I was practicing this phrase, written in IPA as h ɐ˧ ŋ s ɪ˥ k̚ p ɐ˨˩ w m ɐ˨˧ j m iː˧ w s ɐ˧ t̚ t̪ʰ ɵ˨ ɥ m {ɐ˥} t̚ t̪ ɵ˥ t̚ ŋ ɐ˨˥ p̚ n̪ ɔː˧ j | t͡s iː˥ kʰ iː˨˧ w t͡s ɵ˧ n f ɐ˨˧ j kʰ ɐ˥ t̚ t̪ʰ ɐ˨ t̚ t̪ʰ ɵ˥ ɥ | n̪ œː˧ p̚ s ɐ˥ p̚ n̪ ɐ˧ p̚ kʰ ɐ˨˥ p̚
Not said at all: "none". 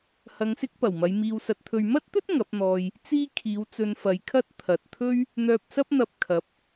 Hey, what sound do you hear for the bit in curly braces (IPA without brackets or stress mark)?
ɐ˥